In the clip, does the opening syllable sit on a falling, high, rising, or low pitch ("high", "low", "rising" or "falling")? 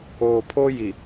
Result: low